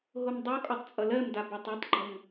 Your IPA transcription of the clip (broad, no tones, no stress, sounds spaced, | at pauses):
ɦ o m dˤ o kʼ ɒ tˤ t͡sʼ ʌ l ɜ m d a b ɒ tˤ o tˤ ɡ͡ǃ ʌ ŋ